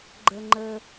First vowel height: mid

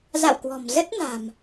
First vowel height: low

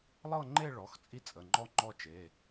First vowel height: mid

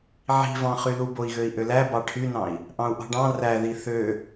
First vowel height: high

